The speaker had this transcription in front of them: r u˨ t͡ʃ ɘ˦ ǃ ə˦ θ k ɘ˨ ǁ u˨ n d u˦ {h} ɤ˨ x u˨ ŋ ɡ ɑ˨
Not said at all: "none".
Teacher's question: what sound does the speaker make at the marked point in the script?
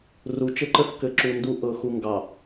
ʔ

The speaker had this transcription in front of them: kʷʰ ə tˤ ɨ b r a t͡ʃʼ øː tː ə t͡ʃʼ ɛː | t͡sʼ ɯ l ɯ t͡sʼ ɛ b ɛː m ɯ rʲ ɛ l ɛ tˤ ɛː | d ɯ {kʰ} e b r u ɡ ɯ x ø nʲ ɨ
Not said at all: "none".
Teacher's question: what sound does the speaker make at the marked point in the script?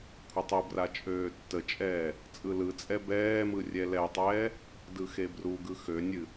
x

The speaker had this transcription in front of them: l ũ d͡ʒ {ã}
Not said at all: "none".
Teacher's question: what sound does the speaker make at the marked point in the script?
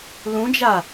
a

